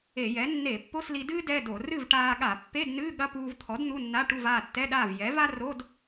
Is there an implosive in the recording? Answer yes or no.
yes